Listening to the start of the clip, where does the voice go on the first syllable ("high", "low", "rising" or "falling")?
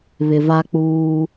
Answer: low